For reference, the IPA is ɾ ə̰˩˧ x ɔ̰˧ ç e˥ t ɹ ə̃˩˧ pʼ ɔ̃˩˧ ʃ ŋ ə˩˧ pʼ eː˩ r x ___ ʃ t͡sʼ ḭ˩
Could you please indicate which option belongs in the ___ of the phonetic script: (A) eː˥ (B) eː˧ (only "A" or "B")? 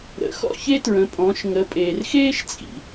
A